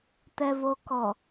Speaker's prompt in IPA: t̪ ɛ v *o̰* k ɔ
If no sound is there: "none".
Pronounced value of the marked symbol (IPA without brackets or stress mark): o